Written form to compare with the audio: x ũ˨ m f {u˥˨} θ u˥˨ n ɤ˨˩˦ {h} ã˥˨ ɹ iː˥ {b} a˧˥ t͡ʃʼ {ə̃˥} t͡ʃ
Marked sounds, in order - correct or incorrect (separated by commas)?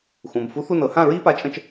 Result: incorrect, correct, incorrect, correct